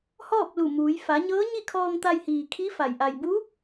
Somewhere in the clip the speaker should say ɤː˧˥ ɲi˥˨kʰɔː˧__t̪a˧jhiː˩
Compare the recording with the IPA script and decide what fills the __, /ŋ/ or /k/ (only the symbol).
ŋ